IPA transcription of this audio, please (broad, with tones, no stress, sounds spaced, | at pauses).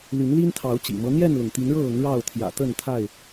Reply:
l y˨˦ n l i˦ n t̪ʰ ɑ˨˦ ʊ̯ t͡ɕ ḭ˨˩ m ɤ˦ n̪ j ɛ˥˨ n l ʊ˩ ŋ t̪ i˨˦ n ɻ ɤ˥˨ ɤ˨˦ ŋ ɻ ɑ˥˨ ʊ̯ t̪ʰ j ä̰˨˩ t̪ ə˥˨ n t̪ʰ a˥˨ ɪ̯